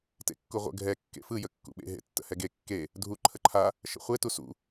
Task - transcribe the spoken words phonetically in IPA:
t ḛ kː u ʁʷ ə̰ ɡʱ ɛ kː ḛ f ɯ j ə kː ṵ ɓ ḛ ɦ ḛ tː ə̰ h ɛ ɡ e kː e | dʱ u ǃʰ ə ǃʰ a | ʃ ə̰ χʷ e t u s ṵ

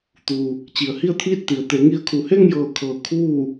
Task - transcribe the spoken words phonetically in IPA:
t̪ u˩ | t͡ɕ i˩ ə̯ h i˥˨ ə̯ t̪ʰ iː˥˨ t̚ t̪ i˩ ə̯ t̪ e˩˧ ŋ i˧ ə̯ kʰ u˩ h e˥˨ ŋ j ɤː˧˩ kʰ ɤː˩ kʰ uː˥˨

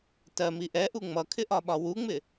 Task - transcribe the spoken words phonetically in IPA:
t ɜ m i ʔ ɛ ʔ u ŋ͡m ʌ kʰ ɪ ʔ ɒ ɓ ɒ w u ŋ͡m ɪ

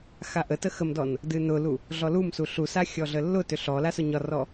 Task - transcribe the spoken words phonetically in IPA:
x a ʔ ə t ə x ə m d ɔ n | d ɨ n ʊ l u | ɮ ɔ l u m s u ɬ u s a xʲ ɔ ɮ ə lː ʊ t ʏ ɬ ɔ l a s ʊ ɲ ɒ r ɔ

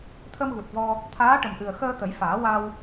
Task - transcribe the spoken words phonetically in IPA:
t̪ʰ ə˧ m ɣ u˨˩ t̚ v ɔ˧ | t̪ʰ aː˧˥ ʈ ə˨˩ m ʔ ɨ˨˩ ə̯ x əː˧ t̪ ə˨˩˦ j f aː˨˩˦ w a˧ w

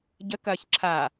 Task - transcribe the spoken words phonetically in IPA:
ɟ ə k ɐː ç ǁʰ a

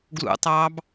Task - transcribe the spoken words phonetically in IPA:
ɡ l ṵ tˤ ɑː b

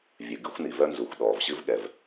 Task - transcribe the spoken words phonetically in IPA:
vʲ ɨ˩ ɡ ɨ˥ xʷ n i˩ v œ˥ n z u˩ xʷ ɗ ɔː˩ v ɕ ɨ˥ v ɠ ɛ˩ v

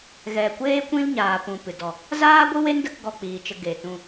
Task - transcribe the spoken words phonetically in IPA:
ɣ ɛ˨ kʷ eː˦ kʷ ĩ˦ l ɲ aː˨ p ũ˨ p ɨ˨ d ɔ˨ | z aː˦ ɡʷ ɨ˦ w e˦ n d ə˧ k ɡ ɔ˧ k͡p iː˨ t͡ʃ ə˧ ɡ e˨ t ũ˧

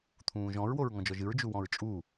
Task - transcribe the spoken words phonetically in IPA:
t̪ʰ ũː ʒ ɔ̃ ɹ w o ɹ ŋ ɔ̃ d͡ʒ ɔ ʒ ɨ ɹ d͡ʒ u w ɔ̃ ɹ t͡ʃʼ u

